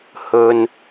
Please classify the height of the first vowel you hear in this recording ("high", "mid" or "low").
mid